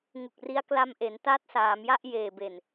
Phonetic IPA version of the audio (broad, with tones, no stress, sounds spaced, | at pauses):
ŋ u˨˩ k̚ r i˦˥ a̯ k l a˧ m ʔ e˩˦ n t a˦˥ t̚ s aː˩˦ m j a˥˩ ʔ j eː˨˩ b e˨˩ n